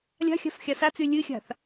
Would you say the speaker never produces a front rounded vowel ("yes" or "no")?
no